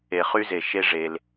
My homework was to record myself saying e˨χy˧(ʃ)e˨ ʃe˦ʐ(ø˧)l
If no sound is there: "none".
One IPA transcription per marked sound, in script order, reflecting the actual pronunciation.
z, e˧

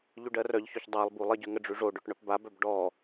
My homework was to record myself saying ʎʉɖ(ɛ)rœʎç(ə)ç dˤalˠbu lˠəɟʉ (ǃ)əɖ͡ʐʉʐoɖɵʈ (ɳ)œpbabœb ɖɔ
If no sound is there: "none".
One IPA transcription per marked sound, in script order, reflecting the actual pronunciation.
ɜ, ɵ, ŋ, ɳ

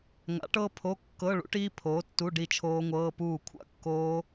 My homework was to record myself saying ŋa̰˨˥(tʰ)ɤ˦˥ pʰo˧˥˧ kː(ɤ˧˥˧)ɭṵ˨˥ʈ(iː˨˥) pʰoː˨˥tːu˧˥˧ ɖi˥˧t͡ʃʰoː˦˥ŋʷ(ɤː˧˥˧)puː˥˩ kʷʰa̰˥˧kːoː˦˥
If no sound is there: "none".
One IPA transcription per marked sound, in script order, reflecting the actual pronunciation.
ʈ, ɤ˧˥˧, iː˦˥, ɤː˧˥˧

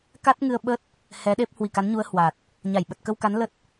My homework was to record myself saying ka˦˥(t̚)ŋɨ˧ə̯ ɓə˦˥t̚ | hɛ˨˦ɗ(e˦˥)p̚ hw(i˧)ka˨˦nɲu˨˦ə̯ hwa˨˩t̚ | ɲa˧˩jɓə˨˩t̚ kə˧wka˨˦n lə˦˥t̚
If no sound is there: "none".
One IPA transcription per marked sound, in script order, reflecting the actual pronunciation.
t̚, e˦˥, i˧˩

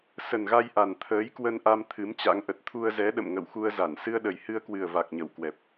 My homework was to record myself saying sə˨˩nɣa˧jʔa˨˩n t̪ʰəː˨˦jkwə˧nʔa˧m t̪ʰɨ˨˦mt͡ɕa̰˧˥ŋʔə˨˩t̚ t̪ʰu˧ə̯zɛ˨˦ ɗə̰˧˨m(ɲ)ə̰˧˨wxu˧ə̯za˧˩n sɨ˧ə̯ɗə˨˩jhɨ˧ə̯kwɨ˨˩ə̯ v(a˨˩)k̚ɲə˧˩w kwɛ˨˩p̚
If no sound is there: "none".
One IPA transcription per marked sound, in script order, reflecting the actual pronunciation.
ŋ, a˨˩

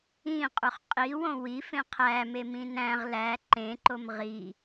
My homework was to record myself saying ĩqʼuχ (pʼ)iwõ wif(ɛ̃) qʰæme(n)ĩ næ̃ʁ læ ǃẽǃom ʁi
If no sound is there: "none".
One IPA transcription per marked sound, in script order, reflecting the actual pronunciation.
qʼ, ẽ, m

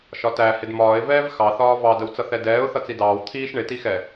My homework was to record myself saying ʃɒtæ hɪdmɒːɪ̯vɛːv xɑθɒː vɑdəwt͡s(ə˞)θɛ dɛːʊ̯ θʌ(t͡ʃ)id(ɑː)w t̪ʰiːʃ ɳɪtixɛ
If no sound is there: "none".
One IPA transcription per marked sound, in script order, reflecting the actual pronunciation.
ʌ, t͡s, ɑː

